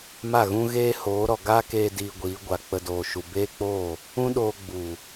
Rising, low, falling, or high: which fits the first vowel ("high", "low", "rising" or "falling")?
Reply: falling